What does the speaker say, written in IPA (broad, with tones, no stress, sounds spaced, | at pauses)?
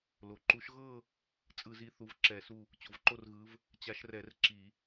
l o˩ ǃ u˨˦ ʃ ɣ ɤ˥˧ | t͡sʼ ɯ˧˩˧ z i˨˦ θ u˨˦ v ǁ ɛ˧˩˧ s u˥˧ | t͡ɕ o˩ v ǃ o˥˧ r ɣ ɯ˨˦ v | t͡ɕ a˨˦ ʃ r ɛ˧˩˧ r ǁ i˧˩˧